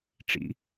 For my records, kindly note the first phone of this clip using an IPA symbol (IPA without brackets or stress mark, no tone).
ʈ͡ʂ